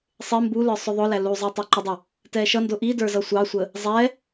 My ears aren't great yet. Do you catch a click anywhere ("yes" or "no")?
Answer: yes